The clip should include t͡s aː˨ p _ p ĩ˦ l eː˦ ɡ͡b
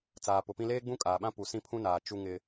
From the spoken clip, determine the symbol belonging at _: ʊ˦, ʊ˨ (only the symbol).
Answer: ʊ˨